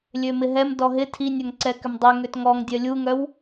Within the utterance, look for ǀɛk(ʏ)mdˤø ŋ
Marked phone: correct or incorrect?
correct